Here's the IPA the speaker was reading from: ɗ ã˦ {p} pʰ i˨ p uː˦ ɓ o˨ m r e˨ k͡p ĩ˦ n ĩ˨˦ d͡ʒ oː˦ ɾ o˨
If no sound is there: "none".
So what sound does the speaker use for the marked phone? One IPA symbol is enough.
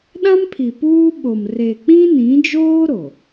m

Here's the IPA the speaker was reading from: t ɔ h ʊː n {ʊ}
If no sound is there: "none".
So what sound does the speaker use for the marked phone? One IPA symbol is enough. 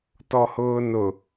ʊ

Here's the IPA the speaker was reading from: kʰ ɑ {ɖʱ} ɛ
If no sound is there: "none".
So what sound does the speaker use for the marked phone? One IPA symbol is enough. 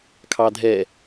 dʱ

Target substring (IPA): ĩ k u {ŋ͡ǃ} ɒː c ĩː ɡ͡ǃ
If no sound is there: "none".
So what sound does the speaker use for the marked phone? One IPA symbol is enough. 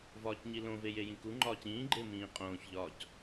ŋ͡ǃ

